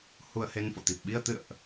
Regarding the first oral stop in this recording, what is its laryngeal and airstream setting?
plain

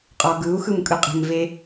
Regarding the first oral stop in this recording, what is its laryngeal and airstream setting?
ejective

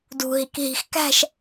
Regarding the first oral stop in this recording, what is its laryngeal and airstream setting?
plain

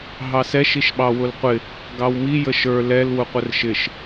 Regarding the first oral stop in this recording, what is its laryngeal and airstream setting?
implosive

